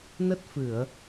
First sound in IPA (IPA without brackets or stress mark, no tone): n